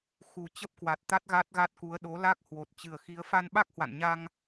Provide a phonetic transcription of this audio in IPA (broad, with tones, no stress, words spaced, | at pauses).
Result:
xu˨˩ t͡ɕə˦˥p̚kwa˨˩t̚t̪a˦˥t̚ ɣa˦˥t̚ɣa˦˥t̚ku˨˦ə̯ ɗo˨˦la˦˥k̚ hwo˨˩t̚t͡ɕɨ˨˩ə̯xi˨˦ə̯ fa˧nɓa˦˥k̚hwa̰˧˨nɲa˧ŋ